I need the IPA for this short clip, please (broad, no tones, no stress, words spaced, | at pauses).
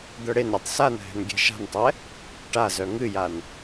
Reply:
d̪œɽenɾʲɛtˤ sanɦɛ̤n ɡʲɛ̤ʃa̤ntˤɛ | ʈazœ ŋɨjan